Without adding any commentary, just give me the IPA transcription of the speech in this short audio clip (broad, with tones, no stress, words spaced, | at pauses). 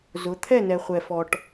zʊ˨˦ t̪ʰɛ˦˨nɛ˨ χʷɛ˨fɔ˨ʈ